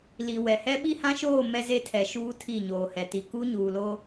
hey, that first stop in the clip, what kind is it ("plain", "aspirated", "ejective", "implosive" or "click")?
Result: implosive